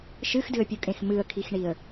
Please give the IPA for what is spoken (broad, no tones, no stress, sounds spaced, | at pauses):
ʃ ɨ x d ɨ ə̯ pʲ u kʼ ẽ x m ɨ ə̯ kʰ i x ɳ i ə̯